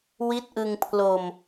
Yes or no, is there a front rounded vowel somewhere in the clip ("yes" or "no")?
no